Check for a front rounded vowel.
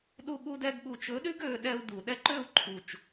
present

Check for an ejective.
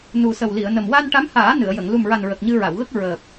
absent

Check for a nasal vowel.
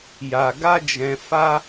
present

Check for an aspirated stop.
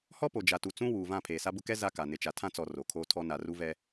present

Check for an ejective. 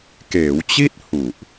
absent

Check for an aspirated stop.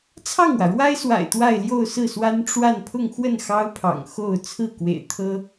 present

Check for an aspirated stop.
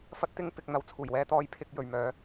present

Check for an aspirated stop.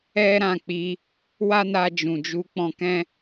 absent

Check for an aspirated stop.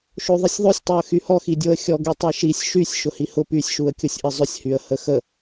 absent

